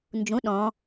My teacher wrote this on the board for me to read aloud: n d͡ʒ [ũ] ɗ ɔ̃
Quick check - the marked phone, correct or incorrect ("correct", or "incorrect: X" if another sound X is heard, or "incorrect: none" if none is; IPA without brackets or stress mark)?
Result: correct